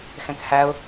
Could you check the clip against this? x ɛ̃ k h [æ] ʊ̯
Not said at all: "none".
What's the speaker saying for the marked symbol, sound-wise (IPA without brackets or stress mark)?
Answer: æ